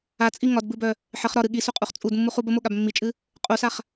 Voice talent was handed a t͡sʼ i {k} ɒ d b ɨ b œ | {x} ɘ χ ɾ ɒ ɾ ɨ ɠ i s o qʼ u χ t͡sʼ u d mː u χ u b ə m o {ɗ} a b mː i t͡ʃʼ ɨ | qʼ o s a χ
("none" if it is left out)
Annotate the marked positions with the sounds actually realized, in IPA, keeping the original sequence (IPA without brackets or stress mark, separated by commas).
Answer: ŋ, ħ, ɠ